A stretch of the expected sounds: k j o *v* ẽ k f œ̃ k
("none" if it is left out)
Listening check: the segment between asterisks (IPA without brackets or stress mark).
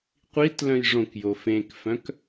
f